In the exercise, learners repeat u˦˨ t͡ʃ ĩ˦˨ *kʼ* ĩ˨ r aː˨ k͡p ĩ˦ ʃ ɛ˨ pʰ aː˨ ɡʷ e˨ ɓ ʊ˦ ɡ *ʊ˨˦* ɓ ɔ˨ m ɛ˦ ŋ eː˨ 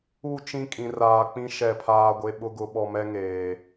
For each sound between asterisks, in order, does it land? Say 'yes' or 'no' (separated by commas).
yes, yes